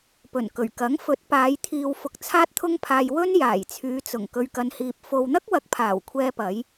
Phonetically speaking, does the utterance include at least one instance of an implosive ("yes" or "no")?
no